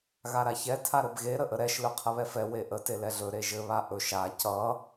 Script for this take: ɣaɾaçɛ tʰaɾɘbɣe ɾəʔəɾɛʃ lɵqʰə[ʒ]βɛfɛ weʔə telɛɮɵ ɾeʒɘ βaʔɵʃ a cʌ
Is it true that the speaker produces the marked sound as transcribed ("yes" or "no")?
no